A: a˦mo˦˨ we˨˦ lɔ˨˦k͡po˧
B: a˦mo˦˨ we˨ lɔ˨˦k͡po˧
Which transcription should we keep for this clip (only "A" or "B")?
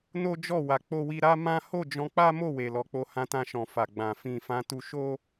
B